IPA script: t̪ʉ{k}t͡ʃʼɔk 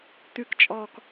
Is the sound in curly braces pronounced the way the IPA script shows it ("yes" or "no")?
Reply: yes